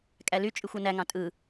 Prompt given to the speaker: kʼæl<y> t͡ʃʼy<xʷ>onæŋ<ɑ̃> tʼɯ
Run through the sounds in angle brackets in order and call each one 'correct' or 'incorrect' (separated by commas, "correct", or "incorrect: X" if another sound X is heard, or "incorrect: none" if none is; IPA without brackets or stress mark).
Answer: correct, correct, correct